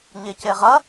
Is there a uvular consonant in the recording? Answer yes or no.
yes